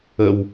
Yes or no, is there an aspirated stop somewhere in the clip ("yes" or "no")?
no